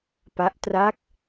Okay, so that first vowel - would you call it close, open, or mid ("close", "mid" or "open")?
open